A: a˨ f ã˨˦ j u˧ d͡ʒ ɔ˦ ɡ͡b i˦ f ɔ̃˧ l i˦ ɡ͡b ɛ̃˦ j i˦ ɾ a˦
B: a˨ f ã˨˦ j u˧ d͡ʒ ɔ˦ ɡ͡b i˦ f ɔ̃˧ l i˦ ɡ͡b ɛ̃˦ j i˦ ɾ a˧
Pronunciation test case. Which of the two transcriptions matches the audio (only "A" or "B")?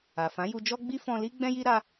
B